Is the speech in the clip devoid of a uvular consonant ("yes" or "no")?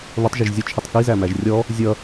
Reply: yes